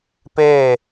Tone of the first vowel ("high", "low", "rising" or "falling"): falling